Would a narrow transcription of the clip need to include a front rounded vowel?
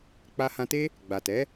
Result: no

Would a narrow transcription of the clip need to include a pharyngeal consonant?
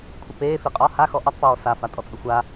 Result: no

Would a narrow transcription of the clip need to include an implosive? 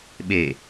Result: yes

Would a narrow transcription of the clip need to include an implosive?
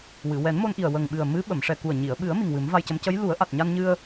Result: yes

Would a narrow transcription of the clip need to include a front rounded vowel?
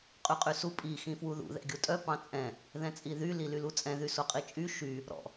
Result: yes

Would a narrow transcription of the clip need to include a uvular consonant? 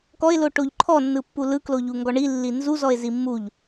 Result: no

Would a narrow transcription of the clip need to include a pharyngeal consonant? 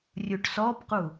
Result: no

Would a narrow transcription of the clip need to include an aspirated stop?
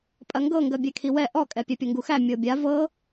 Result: yes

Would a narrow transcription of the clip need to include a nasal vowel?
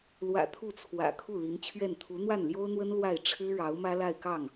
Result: no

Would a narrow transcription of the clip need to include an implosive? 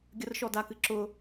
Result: no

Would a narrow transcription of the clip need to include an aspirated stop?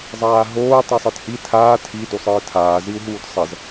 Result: yes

